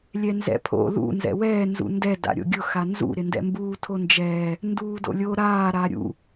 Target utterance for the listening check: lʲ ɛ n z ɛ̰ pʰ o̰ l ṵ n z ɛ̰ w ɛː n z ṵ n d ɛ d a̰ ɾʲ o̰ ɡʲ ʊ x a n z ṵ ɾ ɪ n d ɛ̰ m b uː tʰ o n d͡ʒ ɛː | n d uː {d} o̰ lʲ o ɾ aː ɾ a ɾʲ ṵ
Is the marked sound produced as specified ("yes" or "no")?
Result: yes